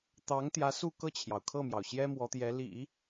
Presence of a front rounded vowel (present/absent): absent